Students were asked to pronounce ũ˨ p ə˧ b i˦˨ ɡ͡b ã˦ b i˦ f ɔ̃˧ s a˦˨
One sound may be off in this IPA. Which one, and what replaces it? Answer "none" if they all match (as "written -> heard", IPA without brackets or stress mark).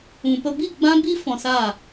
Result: none